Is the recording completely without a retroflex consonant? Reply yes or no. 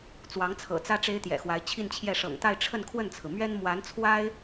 no